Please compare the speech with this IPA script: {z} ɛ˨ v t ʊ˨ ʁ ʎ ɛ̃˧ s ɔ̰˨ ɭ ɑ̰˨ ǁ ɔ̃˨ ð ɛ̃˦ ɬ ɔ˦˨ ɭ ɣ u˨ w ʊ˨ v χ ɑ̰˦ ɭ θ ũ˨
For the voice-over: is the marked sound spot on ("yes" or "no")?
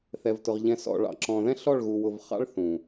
no